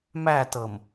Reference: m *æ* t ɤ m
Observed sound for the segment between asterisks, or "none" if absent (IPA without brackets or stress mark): æ